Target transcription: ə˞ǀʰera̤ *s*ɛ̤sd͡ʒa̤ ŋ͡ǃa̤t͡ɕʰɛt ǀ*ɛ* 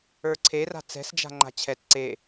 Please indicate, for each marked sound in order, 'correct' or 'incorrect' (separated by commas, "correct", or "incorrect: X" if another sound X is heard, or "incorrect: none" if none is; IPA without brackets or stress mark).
incorrect: t͡s, incorrect: e